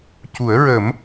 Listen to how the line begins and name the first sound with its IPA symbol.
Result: c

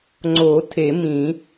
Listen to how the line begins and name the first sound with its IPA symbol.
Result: ŋ͡ǀ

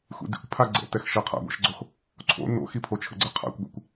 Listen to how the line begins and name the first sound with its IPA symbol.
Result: xʷ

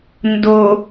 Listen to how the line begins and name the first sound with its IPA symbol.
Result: n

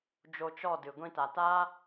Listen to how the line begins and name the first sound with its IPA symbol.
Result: d͡ʒ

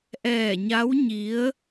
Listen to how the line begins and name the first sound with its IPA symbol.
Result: ʔ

